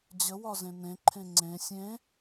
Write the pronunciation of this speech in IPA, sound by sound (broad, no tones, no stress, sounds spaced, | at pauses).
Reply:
d͡ʑ ə w ɒ z ẽ n ẽ ǃʰ ẽ ŋ͡ǀ ẽ sʲ ẽ